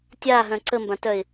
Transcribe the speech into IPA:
tʲ a ɦ œ̃ ǀ ə m b ã t œ ɪ̯

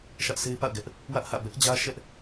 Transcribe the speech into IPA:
ʃ ä˦ ʔ sʰ e˦ ɪ̯ p a̰˦˨ ʊ̯ ɡ ɛ˦ ʔ | w ä˦ ʔ h ä̰˦˨ b ɛ˦ ʔ d͡ʑ ä˦ ʃ ɛ˦ ʔ

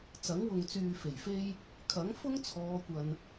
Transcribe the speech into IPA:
t͡s ɐ˨˥ ŋ w ʊ˨ ŋ t͡s yː˨ f e˨˩ j f e˥ j | kʰ ɐ˨˥ ŋ f ʊ˥ ŋ t͡sʰ ɔː˨˧ kʷ ɐ˨ n

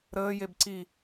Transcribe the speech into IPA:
ɾ əː j e b ǀ i

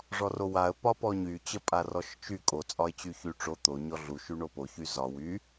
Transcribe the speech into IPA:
ʐ ɔ r o w a ə̯ p ɒ p ɔ ɲ y t͡ɕ ə pʼ a r ɔ ʃ t͡ʃ y kʼ o t͡sʼ ɒ ɪ̯ t͡ɕ y ç y ʈ͡ʂ o t̪ o ɲ ɔ ɮ u ʃ y ɳ o p o ç y z ɒ w y

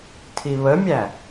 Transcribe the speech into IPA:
tʰ i β ə mʲ æ

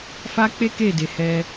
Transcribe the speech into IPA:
f a˦ k͡p e˦ k e˦˨ d e˨ h ɛ˧

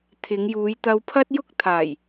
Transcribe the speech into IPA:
t̪ʰ ɪ˨˧ ŋ j uː˨˧ j t̪ ɐ˧ w pʰ ɐ˥ t̚ j ʊ˥ k̚ t̪ʰ aː˨˩ j

